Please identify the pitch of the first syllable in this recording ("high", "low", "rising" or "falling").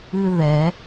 high